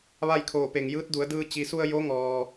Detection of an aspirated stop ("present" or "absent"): present